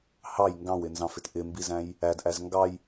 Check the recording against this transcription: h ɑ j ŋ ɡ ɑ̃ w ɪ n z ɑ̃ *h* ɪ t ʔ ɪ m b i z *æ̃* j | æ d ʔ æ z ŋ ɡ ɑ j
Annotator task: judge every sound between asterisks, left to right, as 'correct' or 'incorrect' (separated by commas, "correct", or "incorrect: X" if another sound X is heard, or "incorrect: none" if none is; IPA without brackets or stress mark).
incorrect: f, correct